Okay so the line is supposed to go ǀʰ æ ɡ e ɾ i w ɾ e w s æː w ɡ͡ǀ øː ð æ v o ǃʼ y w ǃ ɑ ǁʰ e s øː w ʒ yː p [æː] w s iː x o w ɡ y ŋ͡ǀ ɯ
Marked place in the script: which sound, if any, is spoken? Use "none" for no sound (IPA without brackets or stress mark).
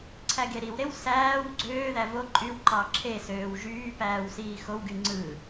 æː